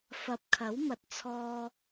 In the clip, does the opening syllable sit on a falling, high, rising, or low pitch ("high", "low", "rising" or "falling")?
rising